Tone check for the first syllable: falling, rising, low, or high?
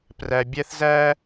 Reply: low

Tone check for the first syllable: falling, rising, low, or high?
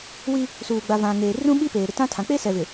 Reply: high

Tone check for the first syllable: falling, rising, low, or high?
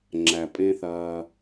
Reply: low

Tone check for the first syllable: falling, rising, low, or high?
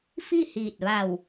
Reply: falling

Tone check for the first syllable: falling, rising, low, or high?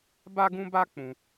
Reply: high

